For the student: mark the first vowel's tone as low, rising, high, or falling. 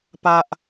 low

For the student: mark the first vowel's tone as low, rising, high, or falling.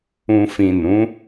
low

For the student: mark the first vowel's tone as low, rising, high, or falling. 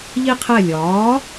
high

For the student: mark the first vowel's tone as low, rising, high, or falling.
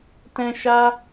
high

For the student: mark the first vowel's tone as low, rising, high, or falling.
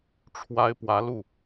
high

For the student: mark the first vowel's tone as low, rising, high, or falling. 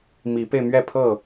rising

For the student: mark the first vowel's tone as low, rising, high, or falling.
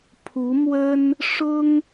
rising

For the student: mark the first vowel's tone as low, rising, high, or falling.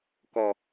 low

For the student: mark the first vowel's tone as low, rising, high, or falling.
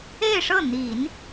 falling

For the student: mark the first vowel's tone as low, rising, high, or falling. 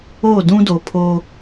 falling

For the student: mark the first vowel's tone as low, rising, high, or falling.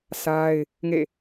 high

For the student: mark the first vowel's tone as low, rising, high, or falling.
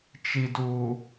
low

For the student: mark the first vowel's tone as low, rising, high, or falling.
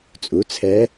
rising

